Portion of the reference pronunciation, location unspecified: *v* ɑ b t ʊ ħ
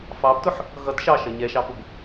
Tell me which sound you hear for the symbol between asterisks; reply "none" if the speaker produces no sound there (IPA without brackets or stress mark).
f